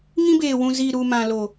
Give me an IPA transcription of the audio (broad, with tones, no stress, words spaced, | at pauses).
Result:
ŋĩ˦beː˨wũ˨ zi˨ɾu˨ mã˨lo˨